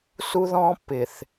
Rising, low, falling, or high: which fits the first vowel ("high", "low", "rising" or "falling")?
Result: high